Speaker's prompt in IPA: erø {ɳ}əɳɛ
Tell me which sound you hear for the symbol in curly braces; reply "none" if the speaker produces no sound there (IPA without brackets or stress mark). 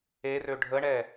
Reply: ɖʱ